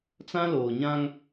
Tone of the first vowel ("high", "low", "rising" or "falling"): high